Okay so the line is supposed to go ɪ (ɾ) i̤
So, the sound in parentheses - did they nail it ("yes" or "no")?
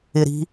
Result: yes